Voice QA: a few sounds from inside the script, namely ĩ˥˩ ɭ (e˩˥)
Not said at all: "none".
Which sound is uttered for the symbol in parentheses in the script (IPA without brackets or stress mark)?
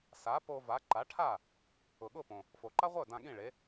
e˩˥